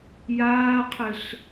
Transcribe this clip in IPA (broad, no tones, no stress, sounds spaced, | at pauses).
j aː qʰ ɘ ɬ